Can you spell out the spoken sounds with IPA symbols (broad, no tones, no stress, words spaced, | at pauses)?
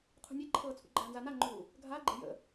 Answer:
qʰṳnʲeǃʰɤːt͡sʰṵ ɡ͡ǃaːnzanaŋ͡ǃuː | ɡʱaːɡ͡ǃe̤ jə̰